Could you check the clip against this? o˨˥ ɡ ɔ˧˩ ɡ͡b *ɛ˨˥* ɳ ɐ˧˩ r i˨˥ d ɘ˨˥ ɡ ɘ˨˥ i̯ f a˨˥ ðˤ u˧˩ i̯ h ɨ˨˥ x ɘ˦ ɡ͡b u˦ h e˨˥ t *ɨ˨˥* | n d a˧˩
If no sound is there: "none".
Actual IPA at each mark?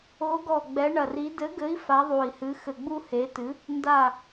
ɛ˨˥, ɨ˨˥

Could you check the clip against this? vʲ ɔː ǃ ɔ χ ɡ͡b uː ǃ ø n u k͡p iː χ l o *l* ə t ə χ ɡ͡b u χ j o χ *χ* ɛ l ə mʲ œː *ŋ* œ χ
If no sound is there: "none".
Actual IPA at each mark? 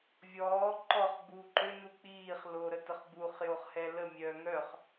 ɾ, h, ŋ

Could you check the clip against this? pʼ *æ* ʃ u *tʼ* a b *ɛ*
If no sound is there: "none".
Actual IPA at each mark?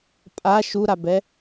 a, ɾ, ɛ

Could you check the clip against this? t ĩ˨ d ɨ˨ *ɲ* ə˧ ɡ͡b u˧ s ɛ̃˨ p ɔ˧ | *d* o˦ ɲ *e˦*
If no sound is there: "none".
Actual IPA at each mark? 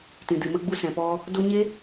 m, d, e˦

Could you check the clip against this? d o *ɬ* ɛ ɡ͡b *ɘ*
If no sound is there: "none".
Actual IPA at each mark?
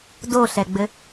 ɬ, ɘ

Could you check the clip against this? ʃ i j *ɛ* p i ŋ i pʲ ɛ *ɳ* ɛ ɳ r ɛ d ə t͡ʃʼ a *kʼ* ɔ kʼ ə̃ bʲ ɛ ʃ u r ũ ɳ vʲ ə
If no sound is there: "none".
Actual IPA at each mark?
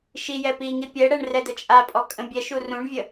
ɛ, ɽ, pʼ

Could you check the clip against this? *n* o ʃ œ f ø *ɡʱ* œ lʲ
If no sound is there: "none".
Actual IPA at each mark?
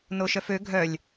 n, ɡʱ

